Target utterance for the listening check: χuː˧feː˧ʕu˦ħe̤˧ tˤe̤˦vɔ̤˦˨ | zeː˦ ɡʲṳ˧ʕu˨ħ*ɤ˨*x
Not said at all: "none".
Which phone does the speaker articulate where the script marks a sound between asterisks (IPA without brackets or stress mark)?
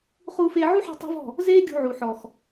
ɔ˨